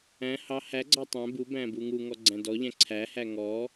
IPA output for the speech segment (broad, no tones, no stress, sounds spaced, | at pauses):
æ̃ h ɑ h æ ɡ͡ǀ ɑ tˤ æ̃ b u b æ̃ b u ŋ u ŋ ɔ ɡ͡ǀ æ̃ d ɔ ʎ æ̃ ǀʰ æ h æ ŋ ɔ